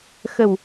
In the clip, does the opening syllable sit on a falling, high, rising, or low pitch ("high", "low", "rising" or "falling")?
low